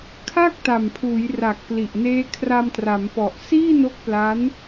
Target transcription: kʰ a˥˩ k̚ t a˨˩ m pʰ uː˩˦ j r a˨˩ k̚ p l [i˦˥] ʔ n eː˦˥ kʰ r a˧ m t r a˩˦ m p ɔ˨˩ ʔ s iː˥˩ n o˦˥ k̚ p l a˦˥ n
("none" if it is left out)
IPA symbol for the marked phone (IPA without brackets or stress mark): i˨˩